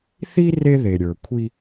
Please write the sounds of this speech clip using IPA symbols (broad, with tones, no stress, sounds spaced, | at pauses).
θ i˦ r e˦ ð e˨ ɾʲ ə˞˨ kʷʰ i˦